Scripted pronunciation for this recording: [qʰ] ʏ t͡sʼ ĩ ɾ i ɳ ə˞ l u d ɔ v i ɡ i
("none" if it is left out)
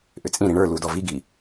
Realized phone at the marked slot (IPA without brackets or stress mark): ʔ